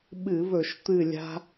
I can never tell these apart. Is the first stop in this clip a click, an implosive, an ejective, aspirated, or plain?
implosive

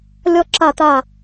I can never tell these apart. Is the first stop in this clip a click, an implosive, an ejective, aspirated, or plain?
click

